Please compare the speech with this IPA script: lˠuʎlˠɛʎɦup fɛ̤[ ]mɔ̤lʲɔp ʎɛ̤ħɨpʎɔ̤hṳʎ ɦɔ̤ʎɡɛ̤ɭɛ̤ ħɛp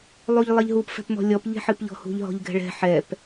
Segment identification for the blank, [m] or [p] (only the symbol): p